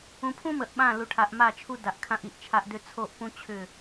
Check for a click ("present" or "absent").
absent